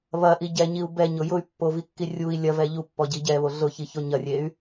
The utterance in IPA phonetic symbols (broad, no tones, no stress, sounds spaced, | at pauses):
β ɐ ʔ i ɟ ɛ ɲ i u̯ b ɛ ɲ ʊ j ʊ y̯ pː o v i kː i rʲ u i̯ lʲ ɐ v ɛ ʎ u pː ɔ ɟ i ɟ ɛ β o ɮ ʊ ç i ç o ɲ ɐ rʲ e y̯